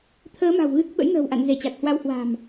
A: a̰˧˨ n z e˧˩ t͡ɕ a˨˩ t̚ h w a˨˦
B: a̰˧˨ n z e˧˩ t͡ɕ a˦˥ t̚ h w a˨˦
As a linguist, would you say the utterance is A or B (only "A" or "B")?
A